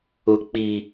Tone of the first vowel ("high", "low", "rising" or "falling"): high